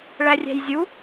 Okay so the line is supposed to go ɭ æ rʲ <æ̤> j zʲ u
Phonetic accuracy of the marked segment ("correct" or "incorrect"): correct